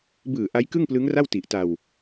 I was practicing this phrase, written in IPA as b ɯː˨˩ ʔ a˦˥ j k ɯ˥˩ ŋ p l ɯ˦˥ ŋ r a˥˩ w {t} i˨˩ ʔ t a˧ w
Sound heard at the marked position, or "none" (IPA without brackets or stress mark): t